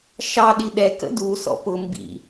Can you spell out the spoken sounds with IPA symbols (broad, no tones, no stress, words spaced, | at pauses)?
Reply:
ʃɑ ɗiɗɛ kə̰du sɔ̰pʊ mbḭ